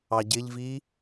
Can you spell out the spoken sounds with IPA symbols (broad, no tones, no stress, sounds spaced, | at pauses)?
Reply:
ɑ ɟ ɪ ʎ v i